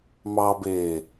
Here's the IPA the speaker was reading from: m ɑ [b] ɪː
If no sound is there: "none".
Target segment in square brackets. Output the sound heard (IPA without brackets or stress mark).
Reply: b